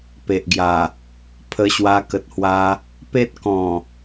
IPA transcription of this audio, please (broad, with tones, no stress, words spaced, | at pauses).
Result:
pe˨ʔɡja˨˩ | pʰə˧ɕwa˧kə˨t̚hwa˧ | pe˦t̚kɔ̃˨˩